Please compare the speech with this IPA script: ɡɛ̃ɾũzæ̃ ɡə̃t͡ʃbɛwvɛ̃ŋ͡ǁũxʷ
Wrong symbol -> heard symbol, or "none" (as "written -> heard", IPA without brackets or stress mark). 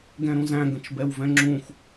none